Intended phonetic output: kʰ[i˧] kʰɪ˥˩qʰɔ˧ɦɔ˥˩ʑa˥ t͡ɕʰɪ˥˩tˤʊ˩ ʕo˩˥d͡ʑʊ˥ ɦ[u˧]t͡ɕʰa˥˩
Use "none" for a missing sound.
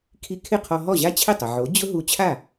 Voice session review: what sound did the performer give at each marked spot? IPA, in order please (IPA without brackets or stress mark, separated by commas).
i˧, u˧